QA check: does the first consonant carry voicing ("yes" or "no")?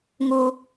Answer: yes